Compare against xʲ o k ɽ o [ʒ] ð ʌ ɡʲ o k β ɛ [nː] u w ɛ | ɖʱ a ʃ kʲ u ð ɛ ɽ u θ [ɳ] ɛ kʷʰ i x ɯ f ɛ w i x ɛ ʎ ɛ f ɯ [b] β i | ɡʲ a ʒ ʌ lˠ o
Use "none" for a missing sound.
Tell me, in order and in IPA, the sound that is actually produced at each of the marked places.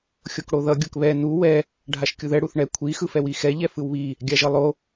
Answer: none, n, ɳ, w

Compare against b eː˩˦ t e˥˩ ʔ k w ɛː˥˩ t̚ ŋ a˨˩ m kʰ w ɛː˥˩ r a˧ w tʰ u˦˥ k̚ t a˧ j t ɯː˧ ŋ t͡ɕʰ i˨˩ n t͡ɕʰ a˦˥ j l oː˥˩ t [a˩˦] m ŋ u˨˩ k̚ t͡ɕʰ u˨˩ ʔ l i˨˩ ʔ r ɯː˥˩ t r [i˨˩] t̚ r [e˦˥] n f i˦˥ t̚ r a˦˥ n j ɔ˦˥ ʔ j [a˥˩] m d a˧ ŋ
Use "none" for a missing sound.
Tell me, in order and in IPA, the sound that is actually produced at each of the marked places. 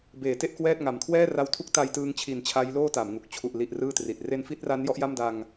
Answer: a˩˦, i˨˩, e˦˥, a˥˩

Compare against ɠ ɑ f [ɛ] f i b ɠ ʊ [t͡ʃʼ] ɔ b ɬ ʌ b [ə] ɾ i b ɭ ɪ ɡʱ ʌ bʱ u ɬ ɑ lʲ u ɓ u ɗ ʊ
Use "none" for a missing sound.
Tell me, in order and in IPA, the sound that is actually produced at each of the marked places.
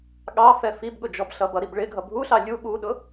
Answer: ɛ, d͡ʒ, ʌ

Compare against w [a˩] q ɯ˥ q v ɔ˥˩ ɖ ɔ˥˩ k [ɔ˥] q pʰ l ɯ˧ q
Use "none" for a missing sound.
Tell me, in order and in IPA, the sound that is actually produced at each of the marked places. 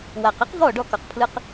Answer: a˩, ɔ˩

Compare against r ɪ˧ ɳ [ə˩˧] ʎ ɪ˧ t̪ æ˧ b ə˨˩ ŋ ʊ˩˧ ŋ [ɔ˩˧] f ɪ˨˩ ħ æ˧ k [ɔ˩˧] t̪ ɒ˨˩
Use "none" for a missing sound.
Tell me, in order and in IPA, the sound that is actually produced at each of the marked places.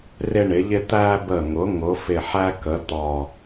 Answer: ɪ˩˧, ʊ˩˧, ə˩˧

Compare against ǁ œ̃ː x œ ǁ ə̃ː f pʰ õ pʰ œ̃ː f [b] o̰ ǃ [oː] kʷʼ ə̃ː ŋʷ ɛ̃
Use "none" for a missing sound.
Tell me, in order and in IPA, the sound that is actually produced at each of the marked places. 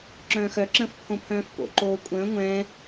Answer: p, oː

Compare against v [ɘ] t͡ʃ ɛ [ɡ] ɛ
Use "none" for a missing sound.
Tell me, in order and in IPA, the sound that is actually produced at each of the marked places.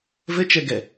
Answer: ɘ, ɡ

